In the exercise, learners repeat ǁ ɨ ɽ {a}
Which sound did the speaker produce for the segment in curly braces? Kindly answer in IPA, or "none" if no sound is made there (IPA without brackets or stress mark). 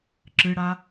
a